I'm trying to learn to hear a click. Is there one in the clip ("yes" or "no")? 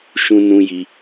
no